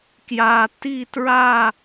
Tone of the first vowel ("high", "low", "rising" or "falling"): low